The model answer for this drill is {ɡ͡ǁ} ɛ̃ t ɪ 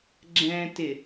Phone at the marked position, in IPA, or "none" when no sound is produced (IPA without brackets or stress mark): ɡ͡ǁ